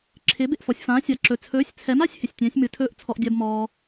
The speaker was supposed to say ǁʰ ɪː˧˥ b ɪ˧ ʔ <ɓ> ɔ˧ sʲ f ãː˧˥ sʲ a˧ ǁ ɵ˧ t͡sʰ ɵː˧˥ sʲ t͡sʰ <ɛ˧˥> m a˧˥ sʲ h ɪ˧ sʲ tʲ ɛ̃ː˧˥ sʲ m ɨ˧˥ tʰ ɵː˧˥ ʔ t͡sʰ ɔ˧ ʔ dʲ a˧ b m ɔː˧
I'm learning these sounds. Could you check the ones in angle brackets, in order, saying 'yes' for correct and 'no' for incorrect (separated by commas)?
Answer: no, yes